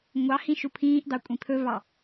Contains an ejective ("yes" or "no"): yes